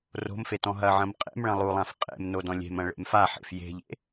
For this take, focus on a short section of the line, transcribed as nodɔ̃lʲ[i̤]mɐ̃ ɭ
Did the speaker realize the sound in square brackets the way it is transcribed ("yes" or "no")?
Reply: no